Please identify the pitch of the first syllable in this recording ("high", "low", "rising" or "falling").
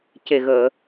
low